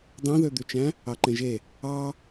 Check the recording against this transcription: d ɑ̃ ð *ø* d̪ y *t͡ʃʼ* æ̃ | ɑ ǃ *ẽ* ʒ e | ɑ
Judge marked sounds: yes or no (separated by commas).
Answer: yes, no, yes